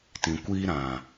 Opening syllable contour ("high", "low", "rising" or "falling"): low